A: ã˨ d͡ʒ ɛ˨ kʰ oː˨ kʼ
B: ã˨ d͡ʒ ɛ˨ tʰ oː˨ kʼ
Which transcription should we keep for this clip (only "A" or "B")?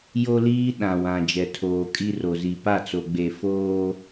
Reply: B